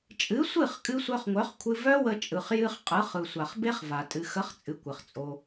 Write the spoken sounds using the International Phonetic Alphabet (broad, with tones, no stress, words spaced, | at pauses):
t͡ʃʼɨ˨˦sʷɨ˦˨χkʼɨ˧ sʷœ˧χŋʷœ˨˦χkʷʰɨ˧ vœ˦wə˧t͡ʃʼɯ˨χ jɨ˧χ qʼɯ˨˦χɯ˨sʷa˨χbe˦χ va˨ tʼɨ˨xə˨˦χt͡sʼɨ˨ kʷɘ˨χt͡sʼo˧